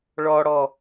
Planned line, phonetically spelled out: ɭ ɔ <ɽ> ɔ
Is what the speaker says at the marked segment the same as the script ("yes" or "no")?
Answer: yes